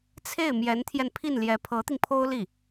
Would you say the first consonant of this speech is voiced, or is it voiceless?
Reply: voiceless